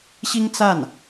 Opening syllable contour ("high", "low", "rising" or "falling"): high